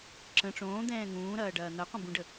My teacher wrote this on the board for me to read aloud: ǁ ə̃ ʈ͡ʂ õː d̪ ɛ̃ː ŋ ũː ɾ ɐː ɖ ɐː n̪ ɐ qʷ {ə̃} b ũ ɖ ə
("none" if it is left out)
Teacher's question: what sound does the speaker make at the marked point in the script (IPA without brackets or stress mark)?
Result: ə̃